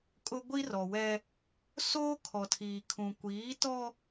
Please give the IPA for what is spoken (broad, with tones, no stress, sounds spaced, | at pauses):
kʼ ʊ˦ ɡʷ i˦ r ɔ˨ w ɛ˦ | s oː˦ kʰ ɔ˨ tʰ iː˨ kʰ ũ˨ kʷ iː˨˦ t ɔ˦